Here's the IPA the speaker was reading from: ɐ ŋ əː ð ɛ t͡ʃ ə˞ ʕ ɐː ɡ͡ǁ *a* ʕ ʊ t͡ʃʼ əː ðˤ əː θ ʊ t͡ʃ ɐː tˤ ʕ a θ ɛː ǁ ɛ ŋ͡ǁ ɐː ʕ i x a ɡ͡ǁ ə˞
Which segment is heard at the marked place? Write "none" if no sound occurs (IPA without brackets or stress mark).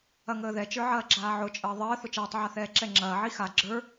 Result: aː